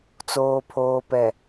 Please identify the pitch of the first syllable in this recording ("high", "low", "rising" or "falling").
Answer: low